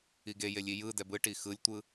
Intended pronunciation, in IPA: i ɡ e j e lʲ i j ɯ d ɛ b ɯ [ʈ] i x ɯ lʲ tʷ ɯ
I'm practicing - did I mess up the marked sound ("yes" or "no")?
no